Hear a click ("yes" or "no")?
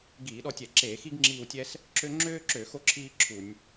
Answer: yes